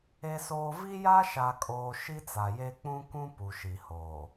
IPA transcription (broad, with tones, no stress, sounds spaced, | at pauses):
e˦ s oː˦ v i˦ j a˦ ʃ a˨ kʼ oː˨ ʃ i˦ t͡s a˨ j e˦ k͡p ũ˦ k ũ˦ p u˨ ʃ i˨ h oː˨